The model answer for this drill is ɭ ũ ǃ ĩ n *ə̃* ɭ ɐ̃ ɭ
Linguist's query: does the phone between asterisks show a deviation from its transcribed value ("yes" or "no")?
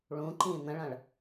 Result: no